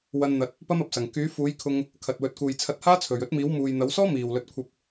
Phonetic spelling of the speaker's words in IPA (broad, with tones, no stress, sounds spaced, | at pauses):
w ɐ˧ n n̪ ɐ˨˥ t̚ | p ɐ˥ m ɐ˨ p̚ s ɐ˨˩ ŋ k yː˨˥ f uː˨˥ j kʰ ʊ˧ ŋ | kʰ ɐ˨ t̚ w ɵ˨˥ t̚ k uː˨ j t͡sʰ ɐ˧ t̚ h aː˥ t͡sʰ ɵ˨˩ ɥ ɵ˥ t̚ m iː˨˥ w m uː˨ j n̪ ɐ˨˥ w s ɔː˥ m iː˨˩ w l ɵ˨ t̚ kʷʰ ɐ˧ p̚